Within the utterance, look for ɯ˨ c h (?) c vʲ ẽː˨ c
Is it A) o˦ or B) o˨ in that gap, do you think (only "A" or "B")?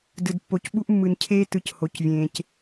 B